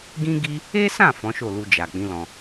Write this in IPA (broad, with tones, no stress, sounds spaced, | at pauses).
ɡ ĩ˦ ɡ i˦ | e˦ s ã˦˨ f ɔ̃˨˦ ʃ o˦˨ l u˧ d͡ʒ a˨ k͡p ĩ˨˦ l ɔ̃˧